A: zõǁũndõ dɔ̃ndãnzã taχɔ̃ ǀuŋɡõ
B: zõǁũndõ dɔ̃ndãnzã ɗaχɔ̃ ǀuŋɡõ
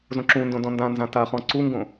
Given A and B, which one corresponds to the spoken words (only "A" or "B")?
A